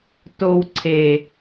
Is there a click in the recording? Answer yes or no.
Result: yes